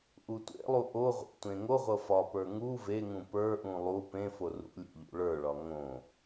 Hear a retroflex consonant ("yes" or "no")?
yes